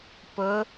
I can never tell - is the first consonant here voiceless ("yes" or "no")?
yes